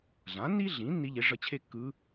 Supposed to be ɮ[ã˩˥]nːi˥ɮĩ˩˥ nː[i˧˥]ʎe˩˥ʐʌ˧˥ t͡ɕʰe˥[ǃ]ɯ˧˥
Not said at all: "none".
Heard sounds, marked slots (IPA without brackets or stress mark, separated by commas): ã˩˥, i˧˥, kː